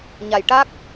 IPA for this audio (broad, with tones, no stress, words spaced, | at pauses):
ɲa˨˩jʈa˦˥k̚